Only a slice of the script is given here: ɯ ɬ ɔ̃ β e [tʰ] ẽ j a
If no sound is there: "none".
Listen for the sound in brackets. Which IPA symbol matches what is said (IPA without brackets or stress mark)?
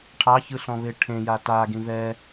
ʈʰ